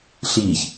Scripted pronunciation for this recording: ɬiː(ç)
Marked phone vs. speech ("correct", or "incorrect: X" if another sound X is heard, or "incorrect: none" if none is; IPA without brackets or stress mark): correct